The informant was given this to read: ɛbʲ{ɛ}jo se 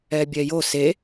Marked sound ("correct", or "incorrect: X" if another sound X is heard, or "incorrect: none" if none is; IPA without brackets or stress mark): correct